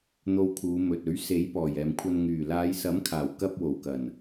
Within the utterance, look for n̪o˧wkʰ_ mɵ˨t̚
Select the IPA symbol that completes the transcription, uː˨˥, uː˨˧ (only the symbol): uː˨˧